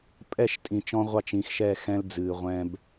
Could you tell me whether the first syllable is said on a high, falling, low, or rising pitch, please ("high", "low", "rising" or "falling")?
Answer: falling